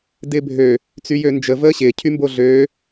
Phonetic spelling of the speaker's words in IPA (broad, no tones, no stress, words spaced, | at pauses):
dɪːbʱø | t͡syjønd͡ʒə vəːɕɪː cʰymboɮøː